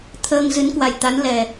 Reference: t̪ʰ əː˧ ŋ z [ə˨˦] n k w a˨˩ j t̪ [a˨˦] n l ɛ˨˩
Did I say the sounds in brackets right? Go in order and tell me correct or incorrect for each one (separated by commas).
incorrect, correct